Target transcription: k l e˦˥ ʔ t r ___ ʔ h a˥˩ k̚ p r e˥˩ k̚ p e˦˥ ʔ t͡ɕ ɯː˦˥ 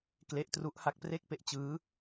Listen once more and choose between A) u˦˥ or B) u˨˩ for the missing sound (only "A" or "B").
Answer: A